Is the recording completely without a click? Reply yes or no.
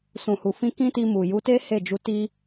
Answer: yes